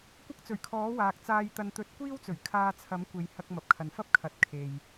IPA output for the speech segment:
kʷ ɐ˥ k̚ t͡s ɵ˨˩ ɥ kʰ ɔː˨˥ w aː˨ k̚ t͡s aː˧ j t̪ ɐ˧ n t̪ ɵ˧ t̚ kʷ iː˥ w t͡s ɵ˨˩ ɥ kʰ aː˧ t͡sʰ ɐ˨˥ m kʷ e˨ j h ɐ˧ k̚ m ɐ˨ p̚ kʰ ɐ˨ n f ɐ˥ p̚ kʰ ɐ˨ t̚ kʰ e˨ j

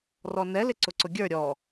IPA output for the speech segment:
r ɔ n ɛ l ɪ ǀ ʊ ǀ ʊ ɡʲ ə˞ ɾʲ ɔ

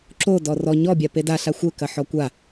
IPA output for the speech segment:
ǁ o d ɔ r ɔ ɲ ɔ bʲ a p e d a ɬ a xʷ ɘ k ɐ ħ ɔ kʷ a

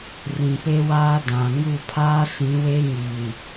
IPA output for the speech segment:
r ĩ˨ p e˦ w aː˦ d ã˨ ŋ u˦˨ pʰ aː˦ s ĩ˨˦ w e˦ ɲ i˨

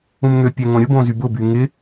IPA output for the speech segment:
ũ m ŋ ø pʲ ɛ ŋ õ ɾʲ ʊ b õ z y b ʊ b y ŋ ɪ

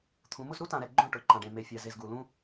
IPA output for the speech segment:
t̪ʰ ũ˨˦ m ʊ˦ z ɾ u˦ t ã˨ ɾ ɛ˨ ɡ͡ǃ õ˦˨ ʈ ʊ˨ ǃ ã˨ ɖ ẽ˨ m e˨ fʲ a˨ z e˨ z ɡ u˨ l ũ˦

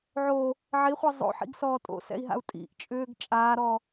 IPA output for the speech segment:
ʕ o | ʕ i χʷ i zˤ o̰ ħ ḭ ɡ s ɔː tʼ o̰ s ɛ̰ i̯ ɦ a̰ u̯ tʼ ḭ ʔ t͡ʃʼ ʏː ɡ t͡ʃʼ aː ɾ ɔ

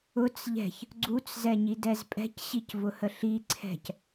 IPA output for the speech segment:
ʊ t͡s ʎ ɛ̤ ç | ɡ͡ǀ u t͡s z ɛ ɲ i d ɛ z pʼ ɛ̤ c ɕ i c v ʊ h ə ɬ i ǀʰ ɛ̤ c

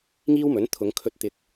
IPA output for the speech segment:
ŋ iː˥ w m ɵ˨˥ n t̪ʰ ʊ˨˧ ŋ kʰ ɵ˧ t̚ t̪ ɪ˧ k̚

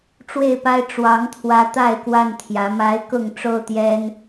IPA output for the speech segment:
ʈ͡ʂ w e˥˨ ɪ̯ p a˦ ɪ̯ ʈ͡ʂ w ɑ˨˦ ŋ t̪ʰ w ä˨˦ t̪ a˥˨ ɪ̯ k w a˥˨ n t̪ʰ j ä˨˦ m a˨˦ ɪ̯ k ʊ˥˨ ŋ ʈ͡ʂ o˥˨ ʊ̯ t̪ j ɛ˦ n

